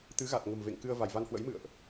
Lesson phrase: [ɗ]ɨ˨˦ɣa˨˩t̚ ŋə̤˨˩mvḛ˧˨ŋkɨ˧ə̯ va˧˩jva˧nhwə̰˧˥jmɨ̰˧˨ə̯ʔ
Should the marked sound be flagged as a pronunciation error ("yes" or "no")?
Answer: yes